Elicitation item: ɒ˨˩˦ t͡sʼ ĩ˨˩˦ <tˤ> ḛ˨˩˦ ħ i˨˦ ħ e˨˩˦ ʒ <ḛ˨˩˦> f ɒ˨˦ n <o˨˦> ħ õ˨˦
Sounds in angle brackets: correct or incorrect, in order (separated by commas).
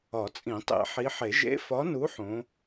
correct, incorrect, incorrect